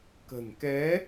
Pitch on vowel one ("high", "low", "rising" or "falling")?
low